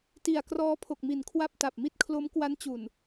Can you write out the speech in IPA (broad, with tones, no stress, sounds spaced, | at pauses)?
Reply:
t i˨˩ a̯ k r ɔː˦˥ pʰ o˨˩ k̚ m i˩˦ n kʰ w a˥˩ p̚ t a˨˩ p̚ m i˥˩ t̚ kʰ l o˦˥ m k w a˦˥ n t͡ɕ u˨˩ n